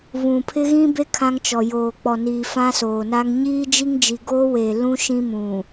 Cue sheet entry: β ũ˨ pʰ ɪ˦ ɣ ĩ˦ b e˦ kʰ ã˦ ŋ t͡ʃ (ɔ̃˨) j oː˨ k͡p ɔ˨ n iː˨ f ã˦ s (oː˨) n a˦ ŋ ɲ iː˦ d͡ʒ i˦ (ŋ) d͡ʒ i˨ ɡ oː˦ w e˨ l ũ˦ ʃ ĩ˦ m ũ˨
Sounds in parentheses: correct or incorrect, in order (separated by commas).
incorrect, correct, correct